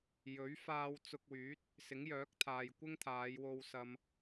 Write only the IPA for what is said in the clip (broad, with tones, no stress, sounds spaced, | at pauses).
j ɵ˨˥ ɥ f aː˧ w t͡s ʊ˧ k̚ w yː˨˥ t̚ | s ɪ˨˥ ŋ j œː˨˥ k̚ t̪ʰ aː˨ j kʷ ɪ˥ ŋ t̪ʰ aː˨˧ j w o˧ w s ɐ˧ m